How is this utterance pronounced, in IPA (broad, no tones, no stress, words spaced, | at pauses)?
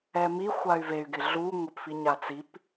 ɛmi xʷay̯vey̯ ɡɪɮu ŋʷɪpfiɲat͡sip